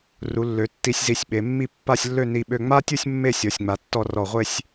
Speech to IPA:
ru˩˧lːø˩˧ tːi˧sʲ zi˧˩sʲɓe˩˧mːi˥˧ pːa˥˧sʲlːø˥˧ ni˧ɓø˧ ŋ͡ma˥tʲu˥˧sʲ mːe˥˧sʲɔ˩˧sʲŋ͡ma˩˧tːɔ˧ rɔ˧˩ʁʷe˥˧sʲ

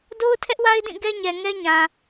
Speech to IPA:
do˦ʊ̯tʰɛ˦ʔwa˦ɪ̯dĩ˦˨ ɡɛ˦ɲɛ˨ ŋɛ˦ɲã˨

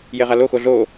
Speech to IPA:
jeʁalo xoɮo

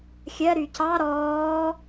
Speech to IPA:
xʲɜɾy cɑ ɾɔː

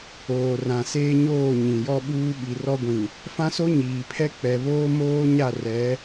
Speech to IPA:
oː˨ rã˨ seː˦ɲoː˦˨ ɲĩ˨jɔ˦ɓuː˦ ɓi˨rɔ˦ɡʷĩ˨ | fã˦so˦ɲiː˨pʰɛ˦ k͡pɛ˨βoː˦ moː˦ɲa˦˨ rɛ˨˦

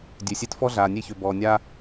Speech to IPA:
dʲø˨sʲe˧tfɔ˦ɮaː˨ nʲe˧çø˨bɔː˨nʲaː˧

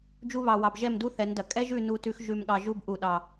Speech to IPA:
d͡ʒu˧βɑ˨ wɑ˨bʒɛ˦˨mdu˦ θɛ˨˦ndɐ˨ kʼɛ˦ʒʉ˦˨ nu˧tʉ˧x ʒʉ˨mɠɑ˨ʒu˧b ʔu˨ɗɑ˨

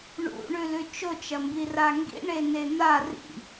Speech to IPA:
ɳṵɳʉlʉ t͡ʃot͡ʃɐmbi raŋɡḭ ɳenen̪a rḭ

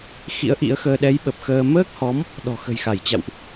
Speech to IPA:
xḭ˧˥ə̯ʔḭ˧˥ə̯xəː˧ ɗɛ˨˦jɓə˨˩p̚ xəː˧ məː˦˥k̚hɔ˨˦m | ɗɔ̤˨˩xə̤˨˩j xa˧˩jt͡ɕa̰˧˨wʔ

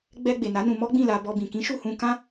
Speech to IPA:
ɡ͡bɛ˧ ɡ͡be˨na˨˦nũ˧mɔ˦ ɡ͡bĩ˦˨la˧ bɔ˧bĩ˨ kĩ˨˦ʃu˦˨hũ˧ kã˦

